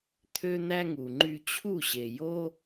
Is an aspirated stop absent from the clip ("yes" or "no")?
no